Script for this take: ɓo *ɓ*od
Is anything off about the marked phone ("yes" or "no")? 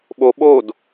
no